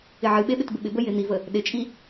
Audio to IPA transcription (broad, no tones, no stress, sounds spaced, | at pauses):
ɪ ʕ ɨ ɓ e ɓ ɪ t b ɪ ɓ ɪ b ə j ɪ n̪ i v ə | ɗ ɪ t͡ʃʼ i